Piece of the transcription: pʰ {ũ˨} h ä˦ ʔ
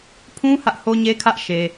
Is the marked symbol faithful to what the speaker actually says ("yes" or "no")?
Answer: no